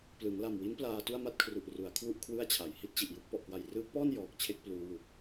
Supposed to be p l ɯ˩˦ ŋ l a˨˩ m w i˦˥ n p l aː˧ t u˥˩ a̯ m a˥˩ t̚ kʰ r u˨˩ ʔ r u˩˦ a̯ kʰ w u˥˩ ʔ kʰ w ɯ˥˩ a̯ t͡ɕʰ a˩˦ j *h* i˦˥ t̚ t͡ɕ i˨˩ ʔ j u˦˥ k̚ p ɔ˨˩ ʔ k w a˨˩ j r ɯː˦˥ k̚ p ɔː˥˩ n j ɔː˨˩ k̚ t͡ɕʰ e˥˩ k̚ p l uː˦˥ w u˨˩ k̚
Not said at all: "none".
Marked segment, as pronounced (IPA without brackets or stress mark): h